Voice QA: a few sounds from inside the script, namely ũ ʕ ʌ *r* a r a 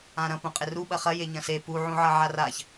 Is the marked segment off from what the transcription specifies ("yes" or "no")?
yes